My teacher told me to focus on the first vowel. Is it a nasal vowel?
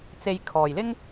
no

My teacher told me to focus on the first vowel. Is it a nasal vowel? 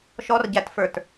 no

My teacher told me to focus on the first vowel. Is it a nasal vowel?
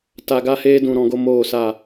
no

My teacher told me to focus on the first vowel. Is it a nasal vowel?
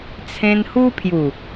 yes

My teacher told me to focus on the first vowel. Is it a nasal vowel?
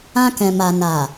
yes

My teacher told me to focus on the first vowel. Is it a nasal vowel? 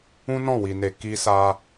yes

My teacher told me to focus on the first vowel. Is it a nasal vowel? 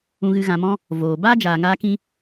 yes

